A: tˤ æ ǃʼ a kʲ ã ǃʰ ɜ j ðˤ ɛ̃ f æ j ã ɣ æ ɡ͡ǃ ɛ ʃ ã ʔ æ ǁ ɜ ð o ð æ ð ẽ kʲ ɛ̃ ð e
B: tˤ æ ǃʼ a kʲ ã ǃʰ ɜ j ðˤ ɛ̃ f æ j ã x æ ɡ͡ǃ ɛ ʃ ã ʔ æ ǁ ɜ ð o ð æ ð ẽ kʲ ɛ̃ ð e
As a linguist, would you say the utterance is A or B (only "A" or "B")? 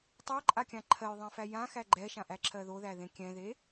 B